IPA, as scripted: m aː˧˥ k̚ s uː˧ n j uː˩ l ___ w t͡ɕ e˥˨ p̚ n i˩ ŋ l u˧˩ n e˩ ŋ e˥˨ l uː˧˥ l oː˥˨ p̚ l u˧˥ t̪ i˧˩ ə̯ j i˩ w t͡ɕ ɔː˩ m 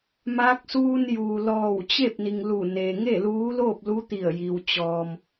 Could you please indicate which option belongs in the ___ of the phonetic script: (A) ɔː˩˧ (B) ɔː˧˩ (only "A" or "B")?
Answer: B